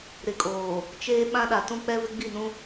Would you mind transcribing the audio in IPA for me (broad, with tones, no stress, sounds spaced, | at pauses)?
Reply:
ɾ ɪ˨ kʼ oː˨ | t͡ʃ eː˦ ɓ ã˦ ɗ a˨ t ũ˦ k͡p ɛ˦ v ɪ˦ ɡ͡b i˦˨ n ũ˦